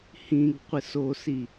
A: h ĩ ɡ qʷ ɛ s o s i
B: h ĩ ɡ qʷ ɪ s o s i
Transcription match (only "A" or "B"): B